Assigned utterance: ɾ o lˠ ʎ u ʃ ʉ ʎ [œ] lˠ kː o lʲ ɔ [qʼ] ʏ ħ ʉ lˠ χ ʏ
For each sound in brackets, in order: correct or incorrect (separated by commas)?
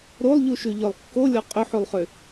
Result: correct, correct